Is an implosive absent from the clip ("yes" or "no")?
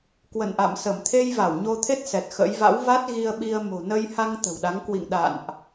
no